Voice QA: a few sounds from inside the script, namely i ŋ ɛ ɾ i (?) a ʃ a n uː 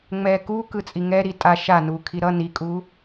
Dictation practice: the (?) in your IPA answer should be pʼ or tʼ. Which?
tʼ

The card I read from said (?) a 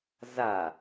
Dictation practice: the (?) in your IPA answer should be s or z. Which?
z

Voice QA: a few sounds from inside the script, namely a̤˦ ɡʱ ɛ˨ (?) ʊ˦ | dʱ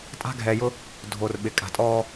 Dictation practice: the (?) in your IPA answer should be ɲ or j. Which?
j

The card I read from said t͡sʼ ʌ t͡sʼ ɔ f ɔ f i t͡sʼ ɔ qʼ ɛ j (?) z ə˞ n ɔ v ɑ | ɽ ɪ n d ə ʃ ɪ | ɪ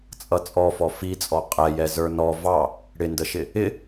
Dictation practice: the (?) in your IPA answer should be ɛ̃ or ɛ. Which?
ɛ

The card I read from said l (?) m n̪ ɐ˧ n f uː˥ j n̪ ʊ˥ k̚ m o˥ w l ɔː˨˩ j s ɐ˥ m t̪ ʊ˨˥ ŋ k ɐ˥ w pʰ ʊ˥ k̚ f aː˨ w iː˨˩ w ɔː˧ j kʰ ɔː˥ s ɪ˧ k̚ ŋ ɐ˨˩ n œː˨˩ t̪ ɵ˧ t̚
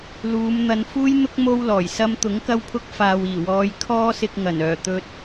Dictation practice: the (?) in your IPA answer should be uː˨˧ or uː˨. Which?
uː˨˧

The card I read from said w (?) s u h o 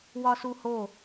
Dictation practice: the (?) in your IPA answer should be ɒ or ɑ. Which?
ɒ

